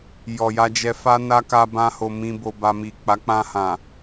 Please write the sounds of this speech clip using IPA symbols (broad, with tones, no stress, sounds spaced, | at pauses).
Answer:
j ɔ˨ j a˧ d͡ʒ ɛ˧ f a˦ n a˦ k a˧ b ã˧ h o˨ m ĩ˧ b o˧ b a˧ m i˨ k͡p a˨˦ k͡p ã˧ h ã˨